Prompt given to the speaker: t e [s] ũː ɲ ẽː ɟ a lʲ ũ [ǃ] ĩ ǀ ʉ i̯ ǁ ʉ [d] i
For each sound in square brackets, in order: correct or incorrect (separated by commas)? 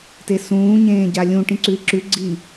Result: correct, incorrect, incorrect